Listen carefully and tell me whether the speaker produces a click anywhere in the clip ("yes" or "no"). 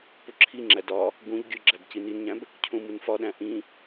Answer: yes